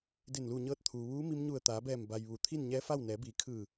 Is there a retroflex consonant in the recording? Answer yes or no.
no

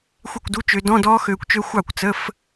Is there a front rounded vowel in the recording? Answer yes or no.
yes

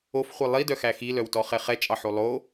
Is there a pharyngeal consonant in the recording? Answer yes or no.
yes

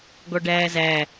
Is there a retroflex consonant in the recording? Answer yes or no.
yes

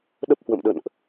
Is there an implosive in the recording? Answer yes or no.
yes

